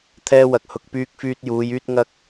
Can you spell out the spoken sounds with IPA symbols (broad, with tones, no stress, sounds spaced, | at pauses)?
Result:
t̪ʰ ɛː˥ w ɐ˧ k̚ h ʊ˨ k̚ p yː˧ k̚ f yː˧ t̚ j uː˨˧ j yː˥ t̚ ŋ ɐ˥ k̚